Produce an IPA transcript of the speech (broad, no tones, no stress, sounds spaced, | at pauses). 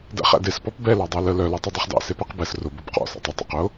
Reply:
d æ̰ χ æ̰ d e s p ɔ p b ɛ l ɑ dˤ æ l ə l œ l ɔ tˤ œ dˤ e χ d ɑ̰ s e p ɛ q b ɛ s r ʊ b ʊ b q ɔ̰ s ɑ̰ tˤ ə tˤ ɑ̰ q ʊ